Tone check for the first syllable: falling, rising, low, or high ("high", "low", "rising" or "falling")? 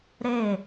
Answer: falling